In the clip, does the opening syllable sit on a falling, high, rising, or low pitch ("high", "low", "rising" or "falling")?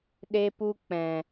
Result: high